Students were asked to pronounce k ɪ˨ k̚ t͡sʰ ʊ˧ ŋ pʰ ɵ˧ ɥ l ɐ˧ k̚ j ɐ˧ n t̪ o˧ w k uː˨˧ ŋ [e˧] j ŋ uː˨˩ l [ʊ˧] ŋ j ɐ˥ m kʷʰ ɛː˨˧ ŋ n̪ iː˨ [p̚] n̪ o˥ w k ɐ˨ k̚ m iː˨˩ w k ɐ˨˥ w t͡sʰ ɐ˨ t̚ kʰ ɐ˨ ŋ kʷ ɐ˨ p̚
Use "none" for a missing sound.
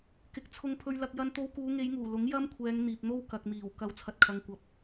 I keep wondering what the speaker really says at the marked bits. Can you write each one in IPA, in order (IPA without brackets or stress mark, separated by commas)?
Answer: e˨˧, ʊ˨˥, p̚